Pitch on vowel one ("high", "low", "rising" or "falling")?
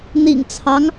low